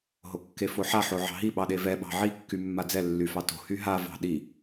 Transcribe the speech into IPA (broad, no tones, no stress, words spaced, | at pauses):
ɦokːefoħa ħoʕɑ̤ɦi ɓɑɗevɛ ɓɑ̤ʕi kːymːad͡zɛ lːyfɑto̤ hyɦa vɑ̤ɗi